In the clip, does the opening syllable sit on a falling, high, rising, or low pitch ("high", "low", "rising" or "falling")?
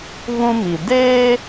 high